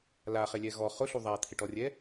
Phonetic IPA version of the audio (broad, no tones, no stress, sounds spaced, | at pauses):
l a χ e lʲ ɛ ɣ ɔ χ ʊ ɬ u ðˤ a t̪ʰ ɪ ʈ ɔ rʲ ɛ